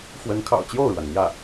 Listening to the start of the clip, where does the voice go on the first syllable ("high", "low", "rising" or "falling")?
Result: rising